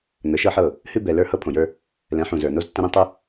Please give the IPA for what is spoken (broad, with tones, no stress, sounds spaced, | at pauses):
n̪ ə˨˦ ʃ ɤ˦ ħ ɤ˦˨ | h ɨ˦ b ɛ˨ l ə˞˦ h ɤ˦ pʰ õ˨ j ə˞˦ | l ɛ̃˨˦ ħ ũ˨ z ə˞˨ n o˦ z tː ə̃˦ ɾ ẽ˦ tˤ u˦